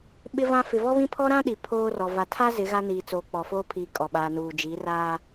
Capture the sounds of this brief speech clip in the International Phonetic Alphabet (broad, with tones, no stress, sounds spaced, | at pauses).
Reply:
ɓ ɪ˦ v ã˦ f ɪ˨ v ɔ˦ β ĩ˦ pʰ ɔ˦ ɾ ã˦ ɗ i˨ pʰ oː˦ r ɔ˨ v a˨ tʰ a˦ z ɪ˨˦ ɣ a˦ n iː˨ t͡s oː˨ k͡p ɔ˨ f oː˦ pʰ iː˨ kʼ ɔ˨ ɓ aː˨ n uː˨ d͡ʒ i˨˦ r aː˦